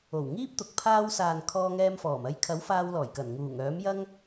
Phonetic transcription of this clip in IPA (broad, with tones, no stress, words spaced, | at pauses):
o˨˩w ŋiː˥p̚t̪ʊ˨k̚ pʰaː˧wsaː˨n kʰɔː˧ŋɛː˧mfɔː˨˩m ɐ˧jkʰɐ˨˥w faː˧wlɔː˨˩jkɐ˨˩n ŋuː˨˩ŋœː˨˥mjɐ˥ŋ